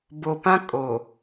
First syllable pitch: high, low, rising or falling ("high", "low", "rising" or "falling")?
low